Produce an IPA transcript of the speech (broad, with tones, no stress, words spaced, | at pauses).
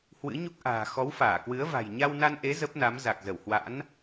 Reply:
hwɨ̰˧˥ɲu˦˥k̚ʔa̤ː˨˩ xɔ˨˦wfaː˧˩kwɨ˨˦ə̯va̤˨˩j ɲa˧wna˧nʔe˨˦ zə˦˥p̚na˨˦m za˨˩k̚zə˧˩whwa̰˧˥n